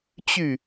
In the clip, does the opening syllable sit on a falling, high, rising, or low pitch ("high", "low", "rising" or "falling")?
falling